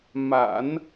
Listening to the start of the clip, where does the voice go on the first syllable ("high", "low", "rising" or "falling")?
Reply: low